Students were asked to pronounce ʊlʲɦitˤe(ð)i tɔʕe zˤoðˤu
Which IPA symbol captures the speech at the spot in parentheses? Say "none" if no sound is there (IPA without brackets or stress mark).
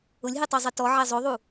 zˤ